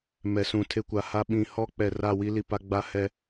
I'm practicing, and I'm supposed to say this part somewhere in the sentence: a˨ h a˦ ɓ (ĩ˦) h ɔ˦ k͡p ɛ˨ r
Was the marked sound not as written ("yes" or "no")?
yes